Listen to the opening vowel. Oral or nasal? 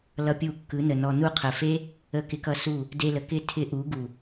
oral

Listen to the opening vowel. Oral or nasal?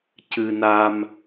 oral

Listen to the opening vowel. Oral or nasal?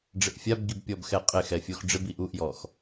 oral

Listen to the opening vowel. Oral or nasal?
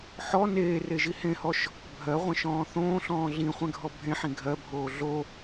oral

